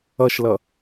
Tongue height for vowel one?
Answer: mid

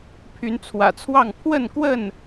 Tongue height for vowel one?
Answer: high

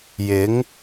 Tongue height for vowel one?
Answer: high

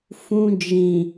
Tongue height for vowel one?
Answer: high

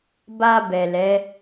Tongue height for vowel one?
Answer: low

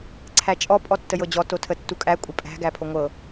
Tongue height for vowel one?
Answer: low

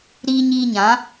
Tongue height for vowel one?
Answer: high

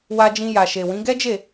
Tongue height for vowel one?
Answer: low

